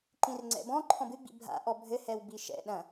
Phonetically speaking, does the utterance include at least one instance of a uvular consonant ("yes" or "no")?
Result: no